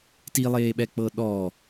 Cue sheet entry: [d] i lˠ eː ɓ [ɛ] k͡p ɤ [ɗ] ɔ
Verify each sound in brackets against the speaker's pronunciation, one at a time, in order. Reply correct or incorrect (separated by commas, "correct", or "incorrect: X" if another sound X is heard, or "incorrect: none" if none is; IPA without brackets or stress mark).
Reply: incorrect: t, correct, correct